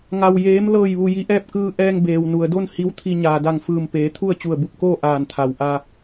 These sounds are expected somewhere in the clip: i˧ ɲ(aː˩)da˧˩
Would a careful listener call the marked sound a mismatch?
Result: no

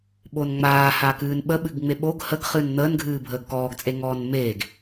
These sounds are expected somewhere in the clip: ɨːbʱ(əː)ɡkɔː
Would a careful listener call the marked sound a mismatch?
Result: no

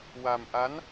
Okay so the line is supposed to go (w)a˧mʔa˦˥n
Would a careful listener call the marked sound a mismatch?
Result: no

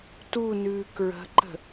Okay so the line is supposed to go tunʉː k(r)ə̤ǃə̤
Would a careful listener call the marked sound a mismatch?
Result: yes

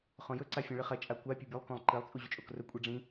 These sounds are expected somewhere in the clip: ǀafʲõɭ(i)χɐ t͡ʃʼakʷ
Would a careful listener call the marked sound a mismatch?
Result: yes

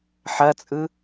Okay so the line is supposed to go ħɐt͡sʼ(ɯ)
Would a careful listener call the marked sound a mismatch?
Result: no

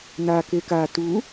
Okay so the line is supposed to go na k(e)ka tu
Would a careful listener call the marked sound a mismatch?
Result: no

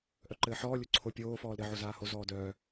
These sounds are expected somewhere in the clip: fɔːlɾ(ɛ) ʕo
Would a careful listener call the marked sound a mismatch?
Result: yes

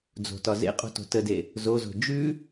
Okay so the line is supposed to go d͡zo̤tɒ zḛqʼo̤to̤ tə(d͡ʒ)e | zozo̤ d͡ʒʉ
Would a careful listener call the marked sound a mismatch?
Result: yes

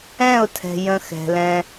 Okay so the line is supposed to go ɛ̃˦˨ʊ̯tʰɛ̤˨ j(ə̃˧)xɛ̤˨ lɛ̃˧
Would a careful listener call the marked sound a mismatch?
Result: no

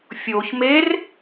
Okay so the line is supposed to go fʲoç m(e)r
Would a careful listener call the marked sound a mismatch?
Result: no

